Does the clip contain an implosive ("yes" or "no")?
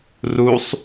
no